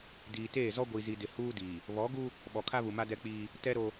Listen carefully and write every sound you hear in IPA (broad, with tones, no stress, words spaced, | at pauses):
diː˨teː˦˨zɔ˦ ɡʷi˨zi˨dɪ˨ huː˦diː˨ | βɔ˨˦ɡu˦ | ɓɔ˨kʰa˦βu˨ma˦ dɛ˦k͡piː˦ | tɛ˦ɾo˦